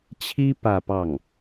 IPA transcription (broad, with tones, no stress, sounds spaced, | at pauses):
t͡ɕʰ i˥ p ä˥˧ p ɑ˥˩ ŋ